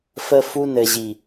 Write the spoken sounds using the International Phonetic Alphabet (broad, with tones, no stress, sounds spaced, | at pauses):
f ə˦ f u˦ n ɘ˨ ʑ i˨